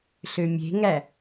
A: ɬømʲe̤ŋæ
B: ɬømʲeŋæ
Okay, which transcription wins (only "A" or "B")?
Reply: A